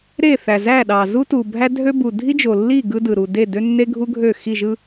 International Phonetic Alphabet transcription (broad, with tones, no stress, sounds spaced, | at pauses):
ɾ e˦˨ θ æ˨ z æ˦˨ ɗ ɑ˨ z u˦ t u˨ bʱ æ˦ dʱ ø˦ b u˨ dʱ i˦ d͡ʒ o˨ lː i˦˨ ɡ ɯ˦ d ɯ˨ ɾ u˨ d e˦˨ d ø˦ nː e˦ ɡʱ u˦ ɡʱ ø˦˨ x i˦˨ ʒ ɯ˦